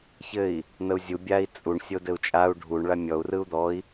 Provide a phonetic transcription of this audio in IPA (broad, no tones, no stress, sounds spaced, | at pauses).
ç ɘ i̯ | n̪ ə u̯ zʲ u bʲ a i̯ t͡sʼ u ɳ sʲ o d ɘ u̯ t͡ʃʼ a u̯ ɖʱ u ɳ ɭ a mʲ ɔ u̯ r ɯ u̯ d̪ ɔ i̯